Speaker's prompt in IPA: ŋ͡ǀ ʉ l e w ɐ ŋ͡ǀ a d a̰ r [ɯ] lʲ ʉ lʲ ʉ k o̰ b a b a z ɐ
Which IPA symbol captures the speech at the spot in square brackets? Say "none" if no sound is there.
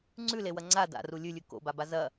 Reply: u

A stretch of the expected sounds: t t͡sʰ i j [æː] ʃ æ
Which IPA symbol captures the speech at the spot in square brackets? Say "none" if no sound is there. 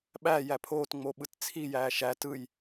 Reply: æː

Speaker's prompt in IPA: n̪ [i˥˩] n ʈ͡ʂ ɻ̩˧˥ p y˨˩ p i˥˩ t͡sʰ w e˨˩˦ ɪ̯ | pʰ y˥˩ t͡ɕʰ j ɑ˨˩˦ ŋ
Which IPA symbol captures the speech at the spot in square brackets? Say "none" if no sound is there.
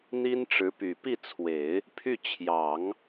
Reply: i˥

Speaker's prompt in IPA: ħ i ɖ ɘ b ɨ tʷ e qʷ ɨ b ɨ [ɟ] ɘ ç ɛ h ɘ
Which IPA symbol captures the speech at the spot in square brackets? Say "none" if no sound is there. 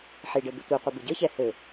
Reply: ɟ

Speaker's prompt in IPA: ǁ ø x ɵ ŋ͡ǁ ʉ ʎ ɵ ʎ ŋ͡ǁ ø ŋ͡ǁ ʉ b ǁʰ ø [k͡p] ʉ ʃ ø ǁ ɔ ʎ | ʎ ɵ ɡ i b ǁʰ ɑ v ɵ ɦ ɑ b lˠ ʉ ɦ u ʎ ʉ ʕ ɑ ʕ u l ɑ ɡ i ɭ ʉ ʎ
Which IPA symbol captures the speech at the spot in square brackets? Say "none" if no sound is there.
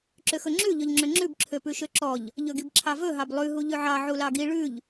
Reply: p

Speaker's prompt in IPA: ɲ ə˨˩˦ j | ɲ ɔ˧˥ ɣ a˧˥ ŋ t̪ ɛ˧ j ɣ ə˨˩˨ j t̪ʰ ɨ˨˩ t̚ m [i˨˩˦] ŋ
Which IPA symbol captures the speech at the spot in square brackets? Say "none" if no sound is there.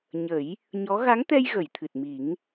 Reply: i˨˩˦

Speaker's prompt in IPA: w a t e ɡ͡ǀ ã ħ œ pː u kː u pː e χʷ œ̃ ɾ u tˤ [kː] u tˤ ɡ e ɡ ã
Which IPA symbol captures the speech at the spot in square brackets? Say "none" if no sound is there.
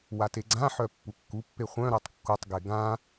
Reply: kː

